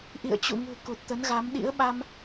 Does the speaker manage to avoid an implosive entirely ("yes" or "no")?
no